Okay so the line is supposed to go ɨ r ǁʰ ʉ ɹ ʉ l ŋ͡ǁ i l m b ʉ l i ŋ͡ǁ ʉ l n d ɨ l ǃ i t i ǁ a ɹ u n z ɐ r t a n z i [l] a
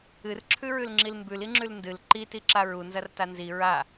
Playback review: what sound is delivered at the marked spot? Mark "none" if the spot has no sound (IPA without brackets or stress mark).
ɹ